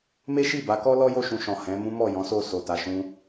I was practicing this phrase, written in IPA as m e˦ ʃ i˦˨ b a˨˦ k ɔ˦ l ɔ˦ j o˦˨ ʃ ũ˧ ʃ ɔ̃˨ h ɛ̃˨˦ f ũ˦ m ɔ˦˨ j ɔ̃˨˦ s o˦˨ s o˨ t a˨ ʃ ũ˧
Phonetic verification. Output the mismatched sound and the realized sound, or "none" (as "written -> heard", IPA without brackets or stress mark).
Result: f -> m